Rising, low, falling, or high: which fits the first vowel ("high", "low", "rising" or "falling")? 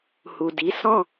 low